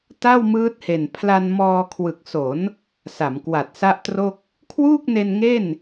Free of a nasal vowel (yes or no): yes